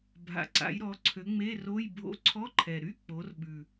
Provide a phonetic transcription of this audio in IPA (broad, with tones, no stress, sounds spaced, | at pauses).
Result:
bʱ a̰˨˩ ǀ a̰˨˦ j ɾ ɔ˨˦ ǀʰ ø˨˦ ŋ͡m e˧˥˧ r o˧˥˧ j bʱ o̰˧˥˧ ǀʰ ɔ˧˥˧ ǃʰ ɛ˨˩ ɾ y˧˥˧ k͡p o˨˦ r ɓ ʉ˨˩